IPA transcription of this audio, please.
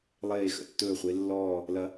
lˠ eː˧˩ x ə̰˧˩ tː ɵː˧˩ χʷ e˨˦ lː ɔː˧˩ | l ɐ˨˦

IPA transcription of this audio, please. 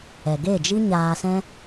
ɛ˨ ɡ e˦˨ d͡ʒ i˦ ɲ aː˧ s ɛ̃˦

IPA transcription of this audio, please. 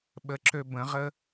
ɓ ə ǁ ø b ə̃ ʁ ə

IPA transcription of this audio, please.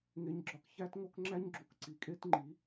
ŋ e˧ ɲ ɡ͡ǁ ɒ˧ k ç æ˦ t ŋ o˦ k ŋ͡ǁ æ˦ ɲ ɡ͡ǁ u˨ k ǀ i˨ kʼ e˦ t ŋ͡ǃ i˨˦

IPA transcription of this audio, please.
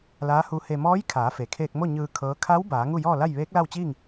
l aː˧˥ h u˧˥ h e˧ m ɔː˧˥ j kʰ aː˩˧ f e˩ kʰ eː˧ k̚ m o˥˨ ɲ ɯː˧ kʰ ɤː˧˥ kʰ a˧˥ w b aː˩˧ ŋ u˥˨ j ɔː˥˨ l a˥˨ j ʋ eː˧˥ k̚ l a˥˨ w t͡ɕ iː˥˨ ŋ

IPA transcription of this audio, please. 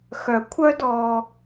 x œ˦ kʷʰ œ˥ d ɔ˦

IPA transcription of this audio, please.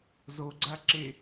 z o ɡ͡ǀ a ǁ e

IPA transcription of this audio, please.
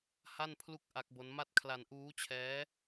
h a˥˩ n pʰ l u˥˩ k̚ ʔ a˦˥ k̚ b o˦˥ n m a˥˩ t̚ kʰ l a˧ n ʔ uː˦˥ t͡ɕʰ ɛː˦˥

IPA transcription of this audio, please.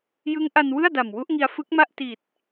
j ɯ˦˥ ŋ ʔ a˧ n w ɯ˥˩ a̯ d a˨˩ m w u˦˥ ʔ ŋ i˧ a̯ f ɯ˦˥ k̚ m a˥˩ ʔ t i˨˩ t̚

